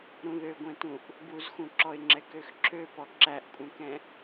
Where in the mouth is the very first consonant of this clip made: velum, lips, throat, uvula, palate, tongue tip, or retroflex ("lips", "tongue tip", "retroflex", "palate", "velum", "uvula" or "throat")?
tongue tip